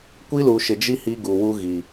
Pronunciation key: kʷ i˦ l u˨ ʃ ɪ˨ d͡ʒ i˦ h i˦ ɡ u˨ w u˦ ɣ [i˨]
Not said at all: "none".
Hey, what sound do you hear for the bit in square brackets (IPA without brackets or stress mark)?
i˨